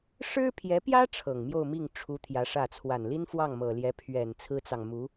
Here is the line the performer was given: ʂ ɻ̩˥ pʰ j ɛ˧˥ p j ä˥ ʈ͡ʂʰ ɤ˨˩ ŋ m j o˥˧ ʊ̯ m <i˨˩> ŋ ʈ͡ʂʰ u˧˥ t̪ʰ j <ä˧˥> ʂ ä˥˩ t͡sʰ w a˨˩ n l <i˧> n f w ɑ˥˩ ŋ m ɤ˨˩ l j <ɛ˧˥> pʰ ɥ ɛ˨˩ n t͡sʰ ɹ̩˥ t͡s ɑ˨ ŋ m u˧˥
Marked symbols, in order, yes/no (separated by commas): no, yes, no, yes